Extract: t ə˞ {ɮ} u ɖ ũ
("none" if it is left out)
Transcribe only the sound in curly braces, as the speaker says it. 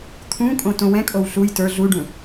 ɮ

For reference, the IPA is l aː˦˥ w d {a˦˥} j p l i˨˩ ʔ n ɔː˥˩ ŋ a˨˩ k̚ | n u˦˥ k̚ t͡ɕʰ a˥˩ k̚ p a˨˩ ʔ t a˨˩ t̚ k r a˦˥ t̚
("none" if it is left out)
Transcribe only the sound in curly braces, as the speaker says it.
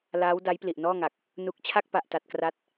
a˦˥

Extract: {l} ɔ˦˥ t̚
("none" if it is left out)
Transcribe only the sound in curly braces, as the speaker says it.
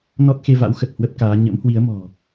n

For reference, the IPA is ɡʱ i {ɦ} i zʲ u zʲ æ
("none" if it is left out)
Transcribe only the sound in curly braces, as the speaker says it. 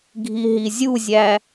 ɦ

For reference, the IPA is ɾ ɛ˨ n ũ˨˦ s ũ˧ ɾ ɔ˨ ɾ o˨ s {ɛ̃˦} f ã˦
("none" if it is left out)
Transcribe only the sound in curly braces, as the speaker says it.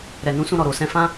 ɛ̃˧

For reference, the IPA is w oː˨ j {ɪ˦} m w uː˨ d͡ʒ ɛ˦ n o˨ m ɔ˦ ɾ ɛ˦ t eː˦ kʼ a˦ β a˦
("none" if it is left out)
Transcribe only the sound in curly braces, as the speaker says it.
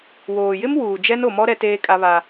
ɪ˦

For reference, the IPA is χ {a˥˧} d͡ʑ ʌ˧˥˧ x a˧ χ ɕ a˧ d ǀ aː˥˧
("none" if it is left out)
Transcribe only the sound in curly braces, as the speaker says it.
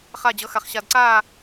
a˥˧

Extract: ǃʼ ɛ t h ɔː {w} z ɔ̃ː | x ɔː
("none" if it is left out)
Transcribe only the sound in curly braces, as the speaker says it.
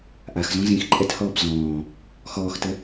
b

